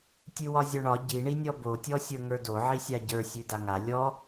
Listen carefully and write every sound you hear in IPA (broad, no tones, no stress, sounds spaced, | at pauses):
tʲ ʉ w ɒ zʲ ɒ ɳ ɒ ɟ i ɳ i nʲ ɔ b o tʲ ɔ sʲ ə˞ ŋ ə˞ d o ʕ i sʲ a ɟ ə˞ sʲ ʉ d a ŋ a lʲ ɔ